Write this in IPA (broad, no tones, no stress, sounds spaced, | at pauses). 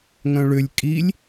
ŋ œ̃ ɭ ʏ lʲ kʼ i lʲ